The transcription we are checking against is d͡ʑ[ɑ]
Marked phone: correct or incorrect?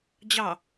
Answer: correct